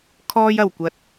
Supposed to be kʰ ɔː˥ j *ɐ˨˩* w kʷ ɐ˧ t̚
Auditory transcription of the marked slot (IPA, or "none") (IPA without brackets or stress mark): ɐ˨˩